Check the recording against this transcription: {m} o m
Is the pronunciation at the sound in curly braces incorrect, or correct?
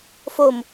incorrect: f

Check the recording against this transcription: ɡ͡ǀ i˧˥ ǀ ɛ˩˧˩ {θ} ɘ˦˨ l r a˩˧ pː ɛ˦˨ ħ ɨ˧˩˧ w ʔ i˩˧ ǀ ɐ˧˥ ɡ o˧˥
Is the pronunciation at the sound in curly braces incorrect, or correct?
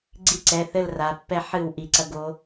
correct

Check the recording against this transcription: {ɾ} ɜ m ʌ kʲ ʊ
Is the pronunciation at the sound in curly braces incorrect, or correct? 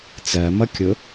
incorrect: t͡s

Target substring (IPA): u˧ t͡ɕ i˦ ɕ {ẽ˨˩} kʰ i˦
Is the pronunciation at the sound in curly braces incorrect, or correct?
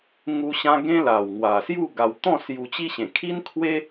correct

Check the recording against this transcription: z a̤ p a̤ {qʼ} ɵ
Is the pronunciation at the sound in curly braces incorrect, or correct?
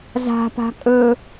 incorrect: kʼ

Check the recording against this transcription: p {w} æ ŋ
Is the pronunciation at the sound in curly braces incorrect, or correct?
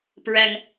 incorrect: ɹ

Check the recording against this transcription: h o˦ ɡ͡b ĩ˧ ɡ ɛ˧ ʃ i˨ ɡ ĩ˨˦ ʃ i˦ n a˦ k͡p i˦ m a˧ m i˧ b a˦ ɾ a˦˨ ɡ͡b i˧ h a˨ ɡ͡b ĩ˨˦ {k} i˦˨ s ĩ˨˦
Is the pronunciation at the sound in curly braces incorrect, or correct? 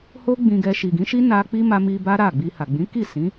correct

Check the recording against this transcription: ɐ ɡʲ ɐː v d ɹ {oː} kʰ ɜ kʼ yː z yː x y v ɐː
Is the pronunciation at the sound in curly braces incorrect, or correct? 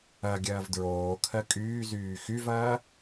correct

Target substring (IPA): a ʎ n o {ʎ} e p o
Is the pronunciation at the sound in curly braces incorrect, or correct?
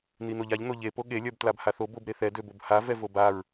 correct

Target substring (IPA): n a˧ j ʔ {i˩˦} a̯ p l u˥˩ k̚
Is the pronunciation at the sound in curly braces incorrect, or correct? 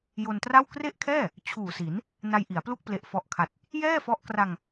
correct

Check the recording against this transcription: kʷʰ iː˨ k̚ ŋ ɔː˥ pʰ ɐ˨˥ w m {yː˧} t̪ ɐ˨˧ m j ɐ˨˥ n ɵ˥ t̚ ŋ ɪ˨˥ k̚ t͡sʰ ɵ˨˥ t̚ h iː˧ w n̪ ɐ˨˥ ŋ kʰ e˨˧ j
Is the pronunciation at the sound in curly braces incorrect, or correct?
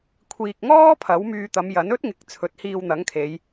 correct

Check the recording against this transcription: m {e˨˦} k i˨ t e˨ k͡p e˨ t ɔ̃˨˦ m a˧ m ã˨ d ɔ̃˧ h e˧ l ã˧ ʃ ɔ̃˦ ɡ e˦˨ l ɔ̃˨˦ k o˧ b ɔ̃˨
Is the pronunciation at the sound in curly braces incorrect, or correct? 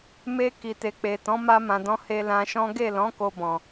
incorrect: e˧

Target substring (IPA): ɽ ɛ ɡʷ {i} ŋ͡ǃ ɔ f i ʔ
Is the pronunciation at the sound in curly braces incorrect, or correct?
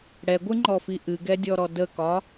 incorrect: ɨ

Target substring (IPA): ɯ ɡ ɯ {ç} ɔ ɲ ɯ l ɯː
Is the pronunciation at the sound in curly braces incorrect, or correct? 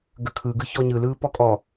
correct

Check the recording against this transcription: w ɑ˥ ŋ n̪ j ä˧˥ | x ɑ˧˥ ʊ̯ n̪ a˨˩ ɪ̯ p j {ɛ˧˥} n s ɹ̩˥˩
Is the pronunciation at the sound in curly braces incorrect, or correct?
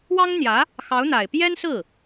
incorrect: ɛ˥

